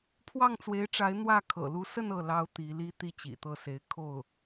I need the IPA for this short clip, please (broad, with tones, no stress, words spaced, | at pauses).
pʰwɑ˥˩ŋt͡swe˧˥ɪ̯ʈ͡ʂa˧˥ɪ̯ n̪wä˥˩ kʰɤ̰˨˩lu˧˥sə˥˧n ɤ˥˩ lɑ˥ʊ̯t̪i˧˥li˥ t̪i˥t͡ɕḭ˨˩t̪ɤ˥˩se˧˥ɪ̯ kʰo˥˩ʊ̯